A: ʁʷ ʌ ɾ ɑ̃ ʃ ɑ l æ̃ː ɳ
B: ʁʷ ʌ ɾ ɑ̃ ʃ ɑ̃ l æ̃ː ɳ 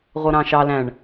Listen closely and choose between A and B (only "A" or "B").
A